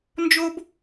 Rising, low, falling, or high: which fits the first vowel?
high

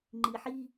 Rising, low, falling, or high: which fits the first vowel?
low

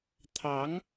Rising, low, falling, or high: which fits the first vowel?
rising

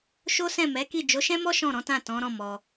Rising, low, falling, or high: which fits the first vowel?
high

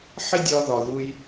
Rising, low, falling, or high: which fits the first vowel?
high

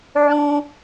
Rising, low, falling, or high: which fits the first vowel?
high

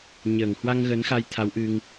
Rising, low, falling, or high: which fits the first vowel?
low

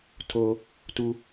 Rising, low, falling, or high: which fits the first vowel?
high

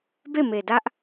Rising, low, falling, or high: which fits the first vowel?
falling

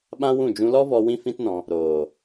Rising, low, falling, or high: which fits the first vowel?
high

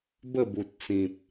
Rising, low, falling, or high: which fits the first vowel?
falling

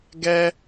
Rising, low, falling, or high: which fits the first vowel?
high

